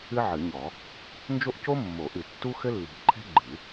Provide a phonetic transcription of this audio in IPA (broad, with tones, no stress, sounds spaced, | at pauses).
ɨ˥ ʕ ɨ˨˩˦ ɲ ɔ˨˩˦ | n d͡ʒ o˥ ʔ c o˥ mː o˨˩˦ ʔ ɨ˨˩˦ tː u˥ x ɘ˥ lː i̤˨˩˦ ʔ ǃʰ ɛ̤˥ ɡ͡ǃ ɨ˨˩˦